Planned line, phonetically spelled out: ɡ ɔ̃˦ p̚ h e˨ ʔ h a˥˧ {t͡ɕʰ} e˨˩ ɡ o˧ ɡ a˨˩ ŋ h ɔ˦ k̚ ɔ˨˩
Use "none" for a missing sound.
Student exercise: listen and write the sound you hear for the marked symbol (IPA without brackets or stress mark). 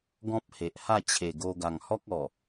t͡ɕʰ